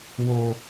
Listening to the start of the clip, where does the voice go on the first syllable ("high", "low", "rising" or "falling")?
low